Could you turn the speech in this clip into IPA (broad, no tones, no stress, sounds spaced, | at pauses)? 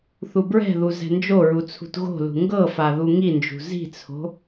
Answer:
θ u b ɹ ɛ̤ ð u z ɛ̤ n d͡ʒ o ɹ u t͡sʰ ṳ t ɣ o̤ l ṳ ŋ ɡ ɤ f a ð u ŋ i n d͡ʒ ṳ z i̤ t͡sʰ o̤